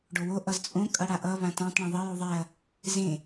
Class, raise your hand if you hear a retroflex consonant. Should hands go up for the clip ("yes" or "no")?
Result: yes